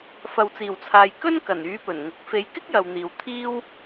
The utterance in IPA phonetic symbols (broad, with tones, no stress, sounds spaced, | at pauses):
f ɐ˨ w t͡s iː˨˩ w t͡sʰ aː˨ j k ɵ˥ n k ɐ˨˩ n yː˨˥ p ɵ˨˩ n ŋ ʊ˨˥ k̚ f e˨˧ j k ɪ˥ k̚ j ɐ˨ w n̪ iː˨ w t̪ʰ iː˥ w